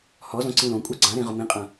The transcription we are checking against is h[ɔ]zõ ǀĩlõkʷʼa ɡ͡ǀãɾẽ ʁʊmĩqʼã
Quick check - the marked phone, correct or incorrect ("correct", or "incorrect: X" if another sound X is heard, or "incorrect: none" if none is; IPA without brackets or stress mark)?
correct